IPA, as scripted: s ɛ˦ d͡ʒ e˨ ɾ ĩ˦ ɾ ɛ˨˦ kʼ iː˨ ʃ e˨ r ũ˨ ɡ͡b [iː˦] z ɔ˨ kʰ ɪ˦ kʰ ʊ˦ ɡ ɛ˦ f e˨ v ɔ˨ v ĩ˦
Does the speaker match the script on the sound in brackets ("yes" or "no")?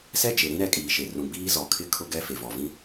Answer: yes